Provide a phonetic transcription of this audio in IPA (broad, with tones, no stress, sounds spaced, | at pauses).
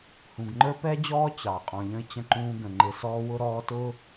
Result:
h ũ˨ ɡ ŋ͡ǃ ə˞˦ p ɛ˦ d͡ʑ ɔː˦ t͡ɕ ɑ˨ qʼ ɔ̃˨ ʎ ə̃˦ ɪ̯ t͡ɕ ə̃˦ ǃ ũː˦ ɡ ə̃˨ ŋ͡ǃ ɪ˨ s ɔː˦ w ʊ˦ ɾ ɔː˦ t ʊ˦